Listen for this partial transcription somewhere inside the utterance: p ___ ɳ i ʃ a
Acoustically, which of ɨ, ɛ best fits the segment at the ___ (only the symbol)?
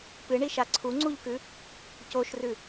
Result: ɨ